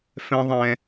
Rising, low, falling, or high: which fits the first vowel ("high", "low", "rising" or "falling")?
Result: high